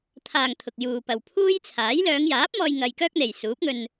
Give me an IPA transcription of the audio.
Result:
t̪ʰ aː˨ ŋ t̪ʰ ʊ˨ k̚ j uː˨ p ɐ˨ w pʰ uː˥ j t͡sʰ aː˨˥ j l œː˨˧ ŋ j aː˨˥ p̚ m ɔː˧ j ŋ ɐ˧ j k œː˥ k̚ n̪ e˨ j s uː˨˥ p̚ ŋ ɵ˧ n

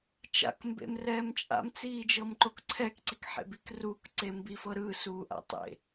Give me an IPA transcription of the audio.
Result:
t͡ʃ a̰ k m b ḛ m r ɛː m t͡ʃʼ a̰ m t͡s iː d͡ʒ ɤ m ǃ o k ǀʰ ɛ k ǀ i k ħ ḛ b i k r uː k ǀ e m b i f ɤ ɾ ɯ s uː ʔ a̰ tˤ ḛ

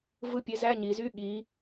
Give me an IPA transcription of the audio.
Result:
v ɯ˧˥˧ pʲ e˨˥ z æ˧˥˧ ɲ i˩˧ z y˧˥˧ ɠ i˩˧

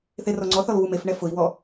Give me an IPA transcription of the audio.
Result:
θ e r ɔ ŋ͡ǀ ɔ θ ɔ l β u m e f ɳ ɛ f ʊ i̯ w ɔ

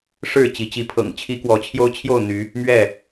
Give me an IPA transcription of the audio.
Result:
ʂ ɻ̩˥˨ t͡ɕ i˨˦ t͡ɕ i˨˦ pʰ ɤ̰˨˩ ŋ t͡ɕʰ i˦ k w ɔ˨˦ t͡ɕʰ j o˦ ʊ̯ t͡ɕʰ j o˥˨ ʊ̯ n̪ y˨˦ | m ɥ ɛ˥˨

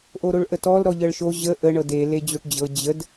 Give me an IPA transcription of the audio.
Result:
ʔ o ɾ o ɭ ʔ ə t ɔ l ɾ ɔ ʎ ɤ ɭ ʃ o ʑ ə ʔ ə ɳ ɤ d e l e d͡ʑ o ʈ d͡ʑ ɤ d͡ʑ ə d

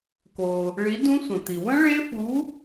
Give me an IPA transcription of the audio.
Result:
k o˩ | ɭ i˨˥ d ũ˦˥ sʷ ə̃˩ t̪ i˩ w ə̃˦˥ ɭ e˦˥ f u˨˥

